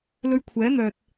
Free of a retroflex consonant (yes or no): yes